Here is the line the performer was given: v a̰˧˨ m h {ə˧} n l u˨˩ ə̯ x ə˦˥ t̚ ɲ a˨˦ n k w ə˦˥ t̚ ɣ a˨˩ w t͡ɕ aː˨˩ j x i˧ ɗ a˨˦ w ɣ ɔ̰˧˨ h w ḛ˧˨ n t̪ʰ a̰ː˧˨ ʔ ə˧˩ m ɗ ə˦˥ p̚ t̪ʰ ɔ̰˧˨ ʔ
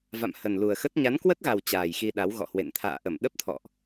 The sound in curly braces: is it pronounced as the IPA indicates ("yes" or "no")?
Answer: no